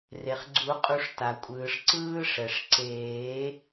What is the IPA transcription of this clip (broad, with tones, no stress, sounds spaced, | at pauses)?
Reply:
r e˩ χ ɡ͡ǀ u˨˩˦ qʼ u˨˩˦ ʂ t a˩ kʷʼ ɯː˩ ʂ ǀ ɯː˦ ʂ ɛ˩ ʂ ǀ eː˨˩˦